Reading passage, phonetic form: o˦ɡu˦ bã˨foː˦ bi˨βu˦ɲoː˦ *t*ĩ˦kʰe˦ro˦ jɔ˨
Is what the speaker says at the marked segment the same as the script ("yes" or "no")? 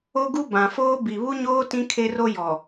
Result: yes